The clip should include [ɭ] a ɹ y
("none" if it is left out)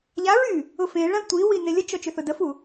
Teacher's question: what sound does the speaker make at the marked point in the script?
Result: ʎ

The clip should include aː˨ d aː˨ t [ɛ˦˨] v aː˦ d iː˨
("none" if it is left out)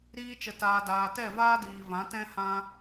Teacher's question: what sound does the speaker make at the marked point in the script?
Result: ɛ˦˨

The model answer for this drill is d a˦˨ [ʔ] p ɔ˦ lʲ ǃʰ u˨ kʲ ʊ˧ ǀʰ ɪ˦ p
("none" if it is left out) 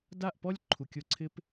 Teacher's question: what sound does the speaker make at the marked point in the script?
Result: ʔ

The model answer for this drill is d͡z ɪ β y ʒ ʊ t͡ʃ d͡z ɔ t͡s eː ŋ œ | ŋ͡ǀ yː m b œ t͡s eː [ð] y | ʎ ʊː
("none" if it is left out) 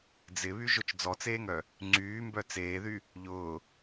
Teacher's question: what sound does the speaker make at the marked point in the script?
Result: ð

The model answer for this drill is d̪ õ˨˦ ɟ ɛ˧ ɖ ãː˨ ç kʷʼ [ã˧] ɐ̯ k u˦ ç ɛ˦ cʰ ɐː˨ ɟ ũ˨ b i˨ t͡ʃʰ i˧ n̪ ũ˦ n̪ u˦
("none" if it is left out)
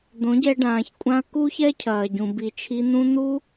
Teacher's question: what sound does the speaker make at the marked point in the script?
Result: ã˧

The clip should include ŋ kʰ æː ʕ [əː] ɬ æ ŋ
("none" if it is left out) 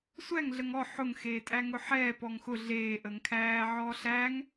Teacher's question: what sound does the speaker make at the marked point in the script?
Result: ɔː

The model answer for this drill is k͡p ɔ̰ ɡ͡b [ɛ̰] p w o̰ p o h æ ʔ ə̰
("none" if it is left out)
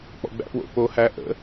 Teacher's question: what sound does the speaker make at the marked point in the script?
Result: æ̰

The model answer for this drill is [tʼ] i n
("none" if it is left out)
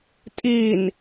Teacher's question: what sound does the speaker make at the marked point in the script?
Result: tʼ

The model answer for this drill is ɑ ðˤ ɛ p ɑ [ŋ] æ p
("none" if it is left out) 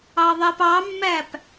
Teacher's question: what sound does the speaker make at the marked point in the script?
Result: mː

